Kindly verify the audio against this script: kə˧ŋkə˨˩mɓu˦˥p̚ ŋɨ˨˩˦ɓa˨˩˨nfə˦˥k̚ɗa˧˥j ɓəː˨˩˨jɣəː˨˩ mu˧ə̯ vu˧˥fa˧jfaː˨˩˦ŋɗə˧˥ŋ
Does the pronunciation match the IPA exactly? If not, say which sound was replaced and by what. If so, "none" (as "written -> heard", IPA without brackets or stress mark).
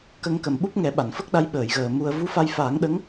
ɨ˨˩˦ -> ɛ˨˩˦